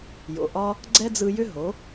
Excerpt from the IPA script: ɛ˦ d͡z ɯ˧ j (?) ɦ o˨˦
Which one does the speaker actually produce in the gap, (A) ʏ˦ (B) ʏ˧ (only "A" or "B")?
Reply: A